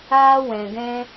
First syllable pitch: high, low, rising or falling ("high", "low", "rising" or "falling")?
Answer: high